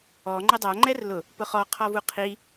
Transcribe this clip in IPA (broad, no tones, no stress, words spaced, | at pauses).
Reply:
ɔ ŋ͡ǃɘdˤa ŋ͡ǃɛrlʊ | pʊχɔ qʰɔvuqʰi